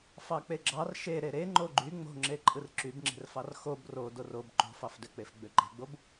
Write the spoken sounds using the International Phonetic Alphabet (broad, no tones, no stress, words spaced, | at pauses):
fɑk͡peɡ͡ǁɑr ʃe ɾeɾe ŋ͡ǃoɡ͡ǃy ŋ͡mo̤ŋ͡ǁe ǃʼɯrǁybŋ͡ǁe̤rfɑr xob ro dorob ǃo̤fɑfdøk͡pef ɡ͡bøǃe̤ɡ͡bob